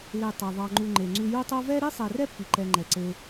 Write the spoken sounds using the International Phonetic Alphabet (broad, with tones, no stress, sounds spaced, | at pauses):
l e˨ tˤ ɛ˩ ðˤ ɑ˨ ŋ͡ǃ u˨ ŋ͡ǃ e˩ ŋ͡ǀ ʉ˨ j u˦ tˤ o˦ v ɛ˥ ɾ i˥ sˤ ɛ˨ r ɛ˥ pː i˩ ǃ ɛ˨ ŋ͡ǃ ɛ˩ ǀ e˨